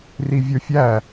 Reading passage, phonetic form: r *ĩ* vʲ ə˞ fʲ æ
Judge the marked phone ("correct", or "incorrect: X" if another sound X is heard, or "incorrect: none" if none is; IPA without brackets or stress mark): incorrect: i